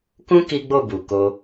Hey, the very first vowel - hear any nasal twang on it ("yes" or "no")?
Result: yes